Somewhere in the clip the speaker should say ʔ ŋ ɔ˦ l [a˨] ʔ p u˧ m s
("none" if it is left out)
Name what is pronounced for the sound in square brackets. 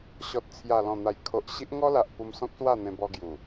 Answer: a˨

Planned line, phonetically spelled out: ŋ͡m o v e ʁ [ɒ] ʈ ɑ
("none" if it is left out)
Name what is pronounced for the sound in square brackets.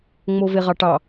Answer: ɑ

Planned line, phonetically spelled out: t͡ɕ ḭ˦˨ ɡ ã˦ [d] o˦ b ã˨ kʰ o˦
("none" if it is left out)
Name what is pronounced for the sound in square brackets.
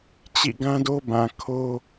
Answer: d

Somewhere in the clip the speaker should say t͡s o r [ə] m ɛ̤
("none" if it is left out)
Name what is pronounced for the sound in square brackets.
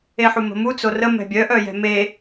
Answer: ə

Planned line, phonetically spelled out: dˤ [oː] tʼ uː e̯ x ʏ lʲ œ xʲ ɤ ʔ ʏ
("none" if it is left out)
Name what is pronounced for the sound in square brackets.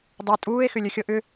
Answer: o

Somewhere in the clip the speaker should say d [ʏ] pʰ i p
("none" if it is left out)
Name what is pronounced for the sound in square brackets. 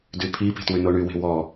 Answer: y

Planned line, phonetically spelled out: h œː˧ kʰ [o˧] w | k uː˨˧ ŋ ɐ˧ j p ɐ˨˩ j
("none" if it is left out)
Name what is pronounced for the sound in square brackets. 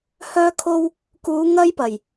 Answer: o˧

